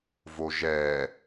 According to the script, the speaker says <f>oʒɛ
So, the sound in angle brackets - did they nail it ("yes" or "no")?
no